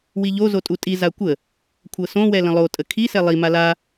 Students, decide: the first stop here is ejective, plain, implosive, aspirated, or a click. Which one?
ejective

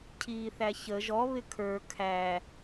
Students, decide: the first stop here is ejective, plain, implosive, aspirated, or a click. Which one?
aspirated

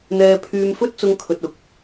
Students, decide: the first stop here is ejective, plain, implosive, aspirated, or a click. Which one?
aspirated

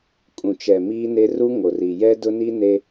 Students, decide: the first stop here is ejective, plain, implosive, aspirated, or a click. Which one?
ejective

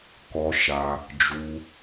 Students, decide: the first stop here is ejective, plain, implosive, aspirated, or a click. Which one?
plain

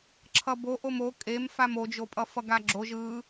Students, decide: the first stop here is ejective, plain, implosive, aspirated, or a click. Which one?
click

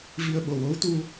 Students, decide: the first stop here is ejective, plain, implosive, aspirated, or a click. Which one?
implosive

